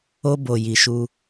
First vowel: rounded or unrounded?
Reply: rounded